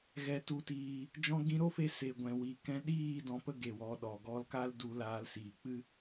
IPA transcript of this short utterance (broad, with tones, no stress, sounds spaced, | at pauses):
ɣ ɛ˨ t u˨ t iː˨ | d͡ʒ ɔ̃˧ ɡ ĩ˧ ɾ o˦ f e˧ s e˨ ɡʷ ɛ̃˨ w i˨ k ɛ̃˧ ɗ iː˦˨ d ɔ̃˧ p ə˦ ɡ e˨ w ɔ˨˦ ɗ ɔ˨ ɡ ɔ˧ l k a˦ l d u˧ l aː˧ l s iː˨ k͡p ɨ˦